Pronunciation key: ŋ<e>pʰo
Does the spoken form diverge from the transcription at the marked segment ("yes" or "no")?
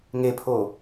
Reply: no